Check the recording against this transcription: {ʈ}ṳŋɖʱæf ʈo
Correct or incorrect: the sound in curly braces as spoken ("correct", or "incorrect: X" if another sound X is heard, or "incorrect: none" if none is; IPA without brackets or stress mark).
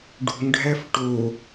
incorrect: ɖ